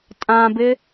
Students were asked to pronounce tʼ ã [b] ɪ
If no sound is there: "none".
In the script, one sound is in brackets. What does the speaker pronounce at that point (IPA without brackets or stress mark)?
b